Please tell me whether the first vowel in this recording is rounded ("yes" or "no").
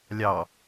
no